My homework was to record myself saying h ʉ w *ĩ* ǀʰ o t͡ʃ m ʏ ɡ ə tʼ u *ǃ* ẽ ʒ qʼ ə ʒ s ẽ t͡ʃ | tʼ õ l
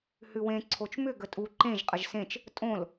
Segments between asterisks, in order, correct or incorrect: incorrect, correct

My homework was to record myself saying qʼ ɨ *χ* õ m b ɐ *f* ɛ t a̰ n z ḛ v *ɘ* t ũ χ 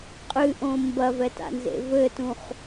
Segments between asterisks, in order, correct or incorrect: incorrect, incorrect, correct

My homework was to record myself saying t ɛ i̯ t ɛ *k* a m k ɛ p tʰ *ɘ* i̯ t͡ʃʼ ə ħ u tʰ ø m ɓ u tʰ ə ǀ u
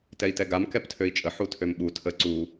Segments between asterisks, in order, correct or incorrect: incorrect, incorrect

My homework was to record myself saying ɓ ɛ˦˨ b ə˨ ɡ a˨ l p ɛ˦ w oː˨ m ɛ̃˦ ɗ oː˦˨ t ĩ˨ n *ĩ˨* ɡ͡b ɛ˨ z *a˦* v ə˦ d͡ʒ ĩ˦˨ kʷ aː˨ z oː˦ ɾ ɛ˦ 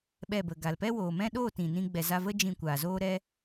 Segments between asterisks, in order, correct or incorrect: incorrect, incorrect

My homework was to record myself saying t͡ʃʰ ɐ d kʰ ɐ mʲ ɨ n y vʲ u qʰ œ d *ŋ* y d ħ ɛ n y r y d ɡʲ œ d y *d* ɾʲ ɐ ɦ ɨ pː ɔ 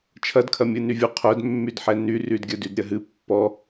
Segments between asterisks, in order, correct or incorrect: incorrect, correct

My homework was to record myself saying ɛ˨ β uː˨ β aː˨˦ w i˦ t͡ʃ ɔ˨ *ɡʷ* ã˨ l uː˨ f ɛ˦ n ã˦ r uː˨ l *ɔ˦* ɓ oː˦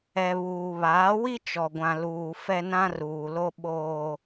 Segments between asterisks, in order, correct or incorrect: correct, incorrect

